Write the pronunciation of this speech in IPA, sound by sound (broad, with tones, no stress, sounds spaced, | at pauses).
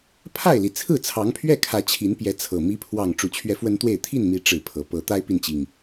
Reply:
pʰ a˥˨ ɪ̯ l i˩ t͡sʰ ɹ̩˥˨ t͡sʰ ɑ˨˦ ŋ pʰ ɥ ɛ˥˨ kʰ ä˨˦ t͡ɕʰ i˨˦ n p j ɛ˨˦ t͡sʰ ɤ˨˩ m i˨˦ pʰ w ɑ˨˩ ŋ ʈ͡ʂ u˨˦ t͡ɕʰ ɥ ɛ˦ f w ə˦ n t̪ w e˥˨ ɪ̯ t̪ʰ i˥˨ n m i˨˦ ʈ͡ʂ ɻ̩˥˨ pʰ ɤ˨˦ p ɤ˦ t̪ a˦ ɪ̯ p i˨ n t͡ɕ i˩ ŋ